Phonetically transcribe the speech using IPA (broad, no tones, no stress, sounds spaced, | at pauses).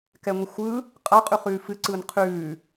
k ɛ ŋʷ ɨ xʷ ɯ | qʼ a qʼ ʉ χ ʉː f ɨ ǀ ɯː n qʰ ʉː